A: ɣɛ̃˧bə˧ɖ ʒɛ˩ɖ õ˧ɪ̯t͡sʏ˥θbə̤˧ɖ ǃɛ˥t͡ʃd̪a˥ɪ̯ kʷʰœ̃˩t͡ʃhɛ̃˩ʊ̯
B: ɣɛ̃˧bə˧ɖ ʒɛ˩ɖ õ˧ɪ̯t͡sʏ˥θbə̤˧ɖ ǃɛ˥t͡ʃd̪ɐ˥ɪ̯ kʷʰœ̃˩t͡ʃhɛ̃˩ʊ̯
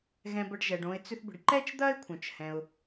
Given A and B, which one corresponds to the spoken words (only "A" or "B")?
B